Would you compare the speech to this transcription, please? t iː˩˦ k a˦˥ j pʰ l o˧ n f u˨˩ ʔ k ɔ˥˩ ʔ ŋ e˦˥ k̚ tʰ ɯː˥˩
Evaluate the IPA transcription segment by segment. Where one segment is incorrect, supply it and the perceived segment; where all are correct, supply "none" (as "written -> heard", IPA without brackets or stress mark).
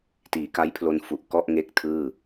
none